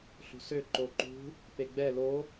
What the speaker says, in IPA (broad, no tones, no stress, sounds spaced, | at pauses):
ɬ ṳ s ø ǃ o ǃ ṳ | p e ɡ͡b ɛ l o